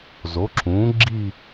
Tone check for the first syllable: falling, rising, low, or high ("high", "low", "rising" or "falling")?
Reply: rising